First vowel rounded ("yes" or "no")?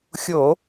yes